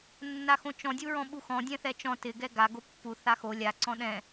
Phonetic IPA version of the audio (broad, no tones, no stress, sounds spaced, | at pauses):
nː a x õ t͡ʃ ɔ̃ dʲ u ɹ ɔ̃ ɓ u x ɔ̃ dʲ ɛ̃ θ ɛ t͡ʃ ɔ̃ t ɪ ɡ ɛ ɡ a ɡ o pː u θ a x o lʲ a ǀ ɔ̃ ɗ ɛ̃